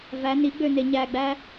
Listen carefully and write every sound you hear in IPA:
v æ n i ɡ͡b ø n e ɲ æ ɡ͡b æ

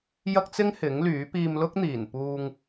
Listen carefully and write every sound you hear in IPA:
j ɐ˥ k̚ t͡s ɪ˥ ŋ h ɪ˨˥ ŋ l yː˨˥ p iː˧ m l ʊ˥ k̚ n̪ iː˨˩ n p uː˧ ŋ

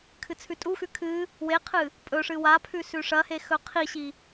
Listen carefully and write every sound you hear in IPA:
kʰ ɨ t͡sʰ ʉ tʼ u x ʉ kʰ ɨ | w e qʰ ɨ | pʼ ɵ ʂ ɨ w a pʰ ʉ s ʉ ʂ ɐ h e x ɵ qʰ i ɕ i

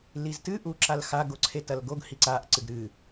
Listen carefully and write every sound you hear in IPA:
l i z t ɨ ʔ u ǁ a l x a ɡ o ǀʰ e t ɐ l ɡ o ɡ h i ǀ a ʔ ǀ ɨ ɡ ɾ ɨ

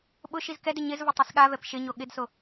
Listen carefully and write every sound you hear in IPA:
ɓ ʊ ʃ i z k ɛ d ɪ ɲ ɪ z v ʊ tˤ i s ɠ a v ɛ p ʃ ɪ ɲ o ɠ ɪ d s o

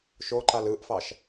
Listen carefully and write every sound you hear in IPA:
ʃ o ǃ a l ɯ ʔ f ɑ ʃ

